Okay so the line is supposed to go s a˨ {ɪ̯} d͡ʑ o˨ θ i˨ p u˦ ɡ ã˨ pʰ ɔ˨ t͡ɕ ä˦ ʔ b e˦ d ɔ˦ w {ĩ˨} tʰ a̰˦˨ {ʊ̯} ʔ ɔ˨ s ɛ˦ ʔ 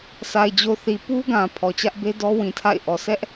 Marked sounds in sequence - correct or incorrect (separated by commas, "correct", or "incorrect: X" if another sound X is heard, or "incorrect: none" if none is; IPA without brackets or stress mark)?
correct, correct, incorrect: ɪ̯